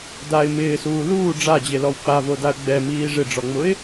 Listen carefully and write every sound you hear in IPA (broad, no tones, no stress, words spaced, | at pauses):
daɪ̯ mɪːsuː luː ɖ͡ʐad͡ʑelɔw k͡pavodaə̯ ɡ͡bɛmiː ʐɪɖ͡ʐɔŋ͡mʊɪ̯